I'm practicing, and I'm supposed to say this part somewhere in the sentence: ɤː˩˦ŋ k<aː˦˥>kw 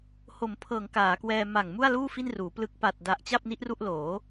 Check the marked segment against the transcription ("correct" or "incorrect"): incorrect